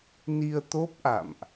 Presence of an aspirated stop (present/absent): absent